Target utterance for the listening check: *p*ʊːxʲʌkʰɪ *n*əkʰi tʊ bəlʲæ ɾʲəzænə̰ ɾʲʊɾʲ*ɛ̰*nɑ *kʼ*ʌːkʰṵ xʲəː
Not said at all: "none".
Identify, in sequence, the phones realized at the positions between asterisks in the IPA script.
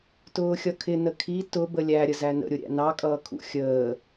t, n, æ̰, kʼ

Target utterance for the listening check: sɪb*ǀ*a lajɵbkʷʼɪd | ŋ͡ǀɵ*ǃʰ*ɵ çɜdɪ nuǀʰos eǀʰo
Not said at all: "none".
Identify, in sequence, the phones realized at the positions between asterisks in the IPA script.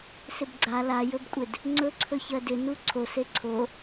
ɡ͡ǀ, ǀʰ

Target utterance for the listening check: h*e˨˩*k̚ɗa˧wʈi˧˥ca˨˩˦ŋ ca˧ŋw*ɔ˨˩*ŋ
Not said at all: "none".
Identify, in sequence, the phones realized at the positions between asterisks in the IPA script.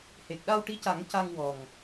e˨˩, ɔ˨˩

